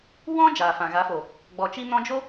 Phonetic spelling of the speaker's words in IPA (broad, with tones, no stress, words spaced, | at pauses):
wɔ̃˦ d͡ʒaː˨fã˨ɣa˨˦fo˨ | ɡ͡bɔ˨t͡ʃi˧nɔ̃˧d͡ʒo˦